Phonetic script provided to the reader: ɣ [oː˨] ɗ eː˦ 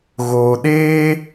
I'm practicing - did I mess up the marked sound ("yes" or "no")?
no